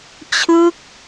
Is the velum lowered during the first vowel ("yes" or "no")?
no